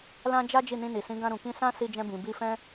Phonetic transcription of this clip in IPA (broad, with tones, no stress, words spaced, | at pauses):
lã˦d͡ʒa˦ d͡ʒi˦˨nĩ˧ni˨sĩ˨˦ ɡã˧ɾũ˨kĩ˧ sã˦ si˧d͡ʒɛ̃˧ bĩ˨bi˧fɛ̃˦